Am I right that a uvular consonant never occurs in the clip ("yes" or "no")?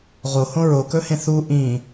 no